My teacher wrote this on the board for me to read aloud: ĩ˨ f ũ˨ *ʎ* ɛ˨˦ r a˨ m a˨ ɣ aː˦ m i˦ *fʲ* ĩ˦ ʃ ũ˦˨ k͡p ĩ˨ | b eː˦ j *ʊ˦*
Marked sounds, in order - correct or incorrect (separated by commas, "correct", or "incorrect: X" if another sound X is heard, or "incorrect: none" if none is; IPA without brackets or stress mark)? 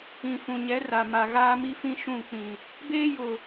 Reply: incorrect: ɲ, incorrect: f, incorrect: ʊ˨